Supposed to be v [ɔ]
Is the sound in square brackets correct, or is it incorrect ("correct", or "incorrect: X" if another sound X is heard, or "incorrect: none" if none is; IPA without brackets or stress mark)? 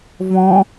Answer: incorrect: ɔ̃